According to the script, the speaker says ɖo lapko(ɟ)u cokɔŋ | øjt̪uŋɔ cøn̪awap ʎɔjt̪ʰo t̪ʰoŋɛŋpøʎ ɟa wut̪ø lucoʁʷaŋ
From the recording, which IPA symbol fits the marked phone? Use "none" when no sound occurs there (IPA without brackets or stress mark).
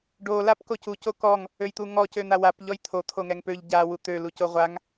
c